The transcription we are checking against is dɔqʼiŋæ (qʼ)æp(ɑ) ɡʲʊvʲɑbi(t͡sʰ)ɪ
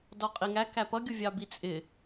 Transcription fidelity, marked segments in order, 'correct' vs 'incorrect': incorrect, incorrect, incorrect

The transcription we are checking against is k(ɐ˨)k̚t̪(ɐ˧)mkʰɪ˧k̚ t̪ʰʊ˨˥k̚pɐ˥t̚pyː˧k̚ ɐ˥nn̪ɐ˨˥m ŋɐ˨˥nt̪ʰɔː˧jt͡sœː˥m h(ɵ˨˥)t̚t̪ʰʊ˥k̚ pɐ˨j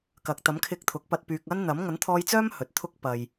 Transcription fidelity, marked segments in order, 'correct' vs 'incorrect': correct, incorrect, incorrect

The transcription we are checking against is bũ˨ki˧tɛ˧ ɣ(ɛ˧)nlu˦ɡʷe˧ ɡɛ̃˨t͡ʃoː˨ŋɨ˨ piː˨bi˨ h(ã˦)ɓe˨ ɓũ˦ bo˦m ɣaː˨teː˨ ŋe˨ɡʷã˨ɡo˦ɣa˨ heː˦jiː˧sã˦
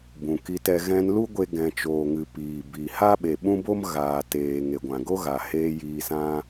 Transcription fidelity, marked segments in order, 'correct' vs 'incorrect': incorrect, incorrect

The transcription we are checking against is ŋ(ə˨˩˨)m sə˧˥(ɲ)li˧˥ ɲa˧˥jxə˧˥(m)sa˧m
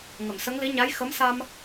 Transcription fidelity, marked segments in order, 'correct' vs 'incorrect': correct, incorrect, correct

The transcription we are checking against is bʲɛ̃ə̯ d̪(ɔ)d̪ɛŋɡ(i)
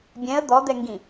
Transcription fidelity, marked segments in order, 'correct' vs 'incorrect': correct, incorrect

